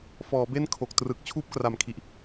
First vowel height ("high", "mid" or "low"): mid